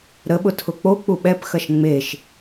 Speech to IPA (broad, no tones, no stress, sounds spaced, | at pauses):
ɾ ə ɓ ʊ tʰ ʊ k͡p o k͡p u ɓ ɛ p x ɐ ʃ ŋ͡m e ʃ